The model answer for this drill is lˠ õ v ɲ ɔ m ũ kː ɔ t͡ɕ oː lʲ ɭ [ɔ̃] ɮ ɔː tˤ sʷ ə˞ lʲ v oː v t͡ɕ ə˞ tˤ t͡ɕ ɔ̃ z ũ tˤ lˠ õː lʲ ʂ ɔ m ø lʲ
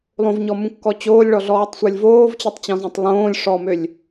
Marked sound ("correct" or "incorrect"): incorrect